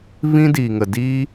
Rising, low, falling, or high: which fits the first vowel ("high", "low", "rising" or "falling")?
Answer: high